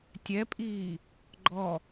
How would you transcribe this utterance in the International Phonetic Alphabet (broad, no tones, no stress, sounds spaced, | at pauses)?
tʲ ɛ pʼ iː | ɡ͡ǃ ɔ